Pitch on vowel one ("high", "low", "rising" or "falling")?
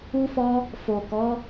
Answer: high